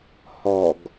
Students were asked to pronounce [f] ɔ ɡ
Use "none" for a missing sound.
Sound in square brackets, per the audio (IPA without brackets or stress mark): h